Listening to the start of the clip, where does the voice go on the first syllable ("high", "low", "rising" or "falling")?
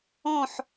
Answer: falling